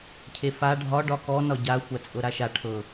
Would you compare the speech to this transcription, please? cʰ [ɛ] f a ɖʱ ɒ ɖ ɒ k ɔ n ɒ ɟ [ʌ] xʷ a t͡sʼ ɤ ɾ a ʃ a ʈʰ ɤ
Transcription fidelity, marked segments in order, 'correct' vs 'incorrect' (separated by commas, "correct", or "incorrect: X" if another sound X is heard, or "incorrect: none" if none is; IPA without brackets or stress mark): incorrect: e, incorrect: a